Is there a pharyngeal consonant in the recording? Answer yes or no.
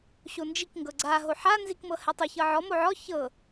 yes